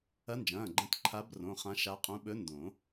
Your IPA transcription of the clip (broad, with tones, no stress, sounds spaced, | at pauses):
ɐ˧˥ n d͡ʒ ɐ̃ː˩˧˩ ɡ͡ǃ ɐ̃˧˥ t ǃʰ a˧˥ b r õ˩˧˩ χ ã˧˥ ʃ a˧˥ qʼ ũ˧˥ ɓ ɵ˧˥ n d õ˨˩˦